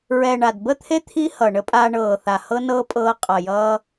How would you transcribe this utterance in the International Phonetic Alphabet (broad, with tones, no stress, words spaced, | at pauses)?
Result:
ɹɛ˨ɳa˨dbə˦˨t̪ʰe˦ t̪ʰi˦ hʌ˨ ɳə˦pʼaː˧ɳɤː˨ θa˨hɤ˦nɤː˦ pʼɤː˧qʼʌ˨ jʌː˧